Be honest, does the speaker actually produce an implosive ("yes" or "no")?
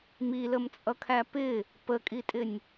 no